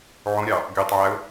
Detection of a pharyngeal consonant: present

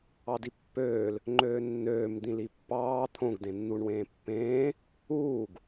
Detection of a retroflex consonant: present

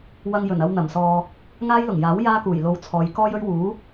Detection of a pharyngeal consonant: absent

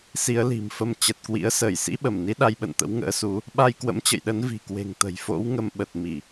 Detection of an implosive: present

